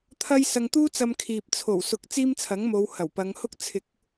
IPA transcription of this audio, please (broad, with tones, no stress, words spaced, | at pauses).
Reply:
t̪ʰɐ˥j sɐ˧ŋt̪uː˥t͡sɐ˧mkʰiː˨p̚ t͡sʰo˨˩wsʊ˨k̚ t͡siː˥mt͡sʰɐ˨˥ŋmo˨˧w hɐ˨˩wpɐ˨˧ŋhʊ˥k̚ t͡sʰɪ˨˥k̚